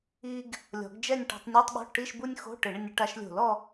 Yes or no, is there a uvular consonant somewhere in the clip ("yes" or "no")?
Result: no